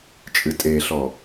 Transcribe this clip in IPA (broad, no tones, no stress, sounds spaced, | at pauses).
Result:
t͡ʃʼ ɨ tʼ e ɬ ɔ